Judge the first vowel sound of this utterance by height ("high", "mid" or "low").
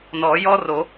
mid